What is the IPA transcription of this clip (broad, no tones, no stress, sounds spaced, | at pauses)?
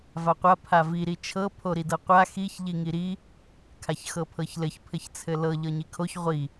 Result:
v a qʷ a pʰ a v i ɾ i t͡ʃʰ ɤ pʰ o ɾ i d ɤ qʷ a x i ç ʎ i ŋ i ɾ i | kʰ a ç x ɤ pʰ ɤ ç l ɘ ç pʰ ɘ ç t͡sʰ ɘ l ɤ ʎ ɤ ɲ i kʰ o ç ʁʷ i